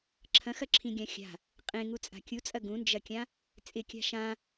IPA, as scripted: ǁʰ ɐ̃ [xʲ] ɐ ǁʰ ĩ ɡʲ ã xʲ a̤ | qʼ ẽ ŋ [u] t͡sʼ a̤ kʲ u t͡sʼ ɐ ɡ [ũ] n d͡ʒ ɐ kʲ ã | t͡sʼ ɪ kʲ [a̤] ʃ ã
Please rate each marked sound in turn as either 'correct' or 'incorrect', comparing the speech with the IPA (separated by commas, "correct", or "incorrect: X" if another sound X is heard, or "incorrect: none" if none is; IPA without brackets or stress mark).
incorrect: x, correct, correct, correct